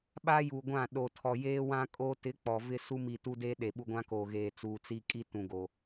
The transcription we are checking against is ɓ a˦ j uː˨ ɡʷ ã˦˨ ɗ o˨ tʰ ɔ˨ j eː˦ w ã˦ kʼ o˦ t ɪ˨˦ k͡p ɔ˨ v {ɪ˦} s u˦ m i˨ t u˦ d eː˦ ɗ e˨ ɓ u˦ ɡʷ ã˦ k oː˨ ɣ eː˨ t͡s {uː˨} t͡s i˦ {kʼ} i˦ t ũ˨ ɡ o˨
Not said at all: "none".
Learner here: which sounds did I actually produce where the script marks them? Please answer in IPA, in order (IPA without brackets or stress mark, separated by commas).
ɪ˦, uː˨, kʼ